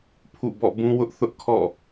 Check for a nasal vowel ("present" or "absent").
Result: present